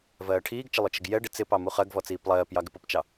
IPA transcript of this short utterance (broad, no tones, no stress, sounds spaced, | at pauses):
v ɜː ʈʰ iː ɡ t͡ʃ ə lˠ ʊ t͡ʃ ə ɡ j ɛ ɖ ɪ t͡s ɪ p ɑ m u χ ɜ ɡ v ɔ t͡s iː p lˠ ɜː p j ɑ ɡ ɪ p ʊ p t͡ʃ ɑ